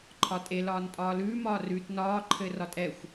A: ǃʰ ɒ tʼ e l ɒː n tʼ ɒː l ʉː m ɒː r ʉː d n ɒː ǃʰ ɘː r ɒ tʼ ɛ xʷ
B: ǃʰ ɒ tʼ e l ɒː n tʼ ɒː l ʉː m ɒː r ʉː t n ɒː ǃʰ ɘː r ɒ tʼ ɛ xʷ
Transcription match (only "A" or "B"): B